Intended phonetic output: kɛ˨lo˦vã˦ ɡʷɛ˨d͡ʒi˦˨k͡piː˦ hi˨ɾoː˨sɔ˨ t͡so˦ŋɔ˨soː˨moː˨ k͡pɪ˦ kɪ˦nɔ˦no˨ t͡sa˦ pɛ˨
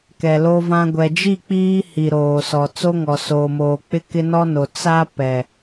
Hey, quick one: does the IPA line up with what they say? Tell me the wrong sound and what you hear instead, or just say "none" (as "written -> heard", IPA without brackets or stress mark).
none